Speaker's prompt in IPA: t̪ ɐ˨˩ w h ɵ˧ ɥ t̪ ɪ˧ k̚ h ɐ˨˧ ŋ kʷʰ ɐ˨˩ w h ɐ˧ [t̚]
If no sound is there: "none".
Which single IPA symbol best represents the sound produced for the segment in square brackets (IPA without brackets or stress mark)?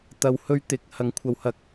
k̚